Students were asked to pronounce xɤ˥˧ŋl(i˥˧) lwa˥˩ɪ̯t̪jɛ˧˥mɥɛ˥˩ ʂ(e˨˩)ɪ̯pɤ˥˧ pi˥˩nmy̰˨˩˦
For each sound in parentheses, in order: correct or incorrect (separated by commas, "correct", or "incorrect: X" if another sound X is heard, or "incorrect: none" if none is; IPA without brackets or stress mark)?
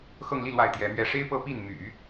correct, incorrect: e˥